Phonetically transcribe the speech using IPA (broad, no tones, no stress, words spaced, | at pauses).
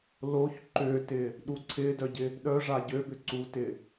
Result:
loç ǃʏtɪ | ɗuǀʰɪdœɟɪ | ɗœʐa ɟøbʏǀutɪ